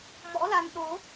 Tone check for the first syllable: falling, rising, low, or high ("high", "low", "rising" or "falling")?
rising